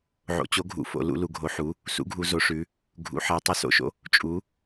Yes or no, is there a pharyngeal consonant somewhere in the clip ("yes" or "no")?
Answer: yes